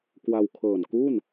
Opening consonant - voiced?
no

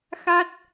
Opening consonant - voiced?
no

